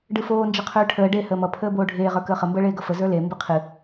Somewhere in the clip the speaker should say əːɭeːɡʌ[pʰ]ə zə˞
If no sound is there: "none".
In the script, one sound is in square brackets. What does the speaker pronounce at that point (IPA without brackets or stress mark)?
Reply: f